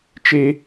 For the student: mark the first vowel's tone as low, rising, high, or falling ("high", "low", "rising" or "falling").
high